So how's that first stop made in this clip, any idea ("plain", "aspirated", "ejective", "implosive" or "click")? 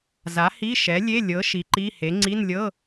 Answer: click